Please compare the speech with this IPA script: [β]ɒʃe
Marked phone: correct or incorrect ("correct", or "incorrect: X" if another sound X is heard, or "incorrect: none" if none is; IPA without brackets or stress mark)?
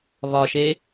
correct